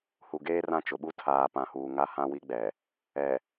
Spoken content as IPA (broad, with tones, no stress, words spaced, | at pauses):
hu˨ɡeː˦rã˦˨ t͡ʃʊ˨ɓu˦ tʰaː˨pã˨huː˨ ŋa˦hã˦wi˦ɡ͡bɛ˨ | ɛ˨